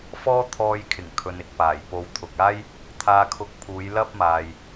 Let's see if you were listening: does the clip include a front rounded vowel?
no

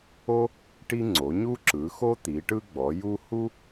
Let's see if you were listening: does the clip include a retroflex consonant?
yes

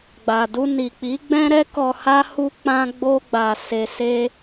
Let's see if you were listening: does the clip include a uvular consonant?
no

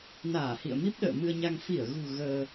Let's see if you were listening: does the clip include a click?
no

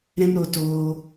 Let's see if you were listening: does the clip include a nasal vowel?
yes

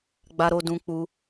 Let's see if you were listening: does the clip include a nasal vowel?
yes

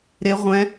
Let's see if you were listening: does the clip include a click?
no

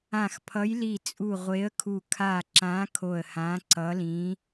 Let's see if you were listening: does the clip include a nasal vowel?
yes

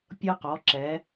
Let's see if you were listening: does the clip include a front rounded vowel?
no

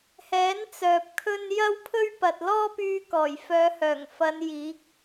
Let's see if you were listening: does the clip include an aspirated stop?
yes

